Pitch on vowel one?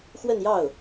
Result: falling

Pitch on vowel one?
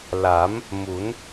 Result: rising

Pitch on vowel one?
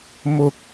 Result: high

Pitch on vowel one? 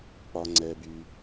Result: low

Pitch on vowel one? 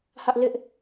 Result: high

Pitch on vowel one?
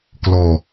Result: low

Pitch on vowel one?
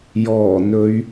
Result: low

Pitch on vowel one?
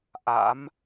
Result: rising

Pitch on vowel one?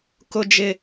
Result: high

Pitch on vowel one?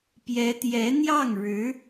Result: rising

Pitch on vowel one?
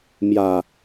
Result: low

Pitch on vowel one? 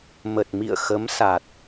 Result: low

